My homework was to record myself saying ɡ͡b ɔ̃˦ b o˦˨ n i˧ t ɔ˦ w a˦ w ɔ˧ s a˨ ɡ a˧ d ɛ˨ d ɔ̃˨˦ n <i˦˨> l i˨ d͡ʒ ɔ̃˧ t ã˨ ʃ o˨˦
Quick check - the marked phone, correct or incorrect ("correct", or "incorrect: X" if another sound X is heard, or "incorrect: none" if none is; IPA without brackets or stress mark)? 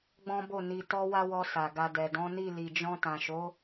correct